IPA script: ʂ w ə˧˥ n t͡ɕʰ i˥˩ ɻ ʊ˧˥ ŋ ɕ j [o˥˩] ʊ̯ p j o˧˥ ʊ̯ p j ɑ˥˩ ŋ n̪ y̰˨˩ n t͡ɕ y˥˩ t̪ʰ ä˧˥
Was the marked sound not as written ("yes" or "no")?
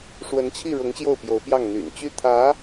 no